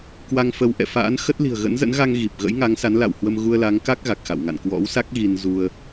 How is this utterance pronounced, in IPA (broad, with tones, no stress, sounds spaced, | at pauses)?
k w a˧ ŋ f ə˨˦ w ʔ ɛ̰˧˨ f a̰ː˧˥ n x ə˦˥ t̚ l i̤˨˩ ə̯ ɣ ə̰˧˥ n z ə̰˧˥ n ɣ a˧ ŋ ɣ i˨˩ p̚ ɣ ə̰˧˥ j ŋ a˨˦ ŋ s a˨˦ n l a̰˧˨ w h w ə˧ m ɣ u˧ ə̯ l a˨˦ ŋ k a˦˥ k̚ ɣ a˨˩ k̚ x a̰˧˨ w ŋ a̰˧˨ n k w ɔ̰˧˥ w s a˦˥ k̚ ɣ i˧ n z u˧ ə̯